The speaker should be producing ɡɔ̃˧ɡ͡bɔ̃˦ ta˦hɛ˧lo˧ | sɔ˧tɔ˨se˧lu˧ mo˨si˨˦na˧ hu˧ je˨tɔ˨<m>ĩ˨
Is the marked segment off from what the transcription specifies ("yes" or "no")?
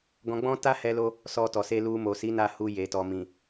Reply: no